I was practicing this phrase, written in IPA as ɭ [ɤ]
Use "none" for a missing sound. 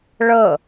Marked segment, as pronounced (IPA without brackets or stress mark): ɤ